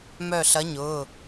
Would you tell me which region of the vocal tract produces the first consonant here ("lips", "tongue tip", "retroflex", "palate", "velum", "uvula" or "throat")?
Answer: lips